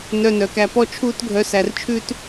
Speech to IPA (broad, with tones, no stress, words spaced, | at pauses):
nœ˧nœ˨kæ˧ pɔ˦t͡ʃʰuː˦t ɡʱœ˧sæ˧rt͡ʃʰʉ˦t